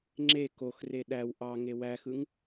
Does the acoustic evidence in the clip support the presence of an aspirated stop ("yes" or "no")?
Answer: no